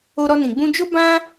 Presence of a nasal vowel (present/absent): present